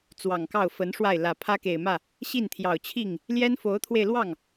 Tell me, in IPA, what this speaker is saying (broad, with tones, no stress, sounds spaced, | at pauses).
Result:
t͡s w ɑ˨˩ ŋ k ɑ˥˩ ʊ̯ f ə˧˥ n ʂ w a˥˩ ɪ̯ l ä˨˩ pʰ ä˥ k e˨˩ ɪ̯ m ä˥˩ | ɕ i˥˩ n t̪ʰ j ɑ˨˩ ʊ̯ t͡ɕʰ i˥˩ ŋ | l j ɛ˥ n f o˧˥ ʊ̯ t̪ʰ w e˧ ɪ̯ l w ɑ˥˩ ŋ